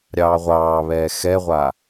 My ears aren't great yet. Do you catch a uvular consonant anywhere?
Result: yes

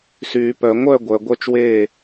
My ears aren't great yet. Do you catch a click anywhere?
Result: no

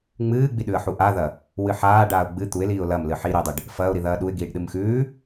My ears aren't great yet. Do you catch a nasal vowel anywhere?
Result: no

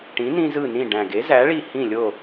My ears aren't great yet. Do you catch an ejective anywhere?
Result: no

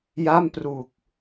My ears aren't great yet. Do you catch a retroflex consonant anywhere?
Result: no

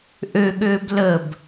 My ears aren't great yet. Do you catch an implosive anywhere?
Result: yes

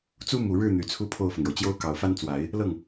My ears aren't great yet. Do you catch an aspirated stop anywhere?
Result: yes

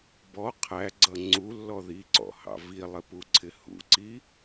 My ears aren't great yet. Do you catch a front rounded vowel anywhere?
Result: no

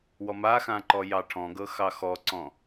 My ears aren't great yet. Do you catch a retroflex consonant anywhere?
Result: yes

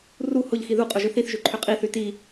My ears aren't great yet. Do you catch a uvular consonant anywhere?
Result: yes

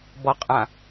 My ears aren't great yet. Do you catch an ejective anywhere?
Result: yes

